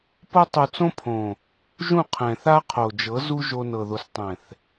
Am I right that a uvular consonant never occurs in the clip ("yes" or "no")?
no